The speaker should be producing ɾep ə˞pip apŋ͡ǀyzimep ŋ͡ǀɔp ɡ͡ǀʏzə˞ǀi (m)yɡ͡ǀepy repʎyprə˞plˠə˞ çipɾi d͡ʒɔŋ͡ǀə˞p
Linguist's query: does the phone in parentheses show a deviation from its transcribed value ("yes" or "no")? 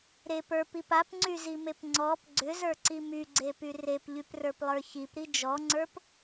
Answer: no